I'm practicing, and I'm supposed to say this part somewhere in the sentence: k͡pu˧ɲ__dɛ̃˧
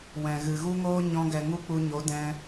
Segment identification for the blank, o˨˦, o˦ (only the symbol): o˨˦